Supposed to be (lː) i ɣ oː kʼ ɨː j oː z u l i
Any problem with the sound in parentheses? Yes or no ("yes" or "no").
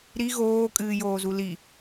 yes